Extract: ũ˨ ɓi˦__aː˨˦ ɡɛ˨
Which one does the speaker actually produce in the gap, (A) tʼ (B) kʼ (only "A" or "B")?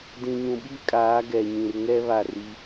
B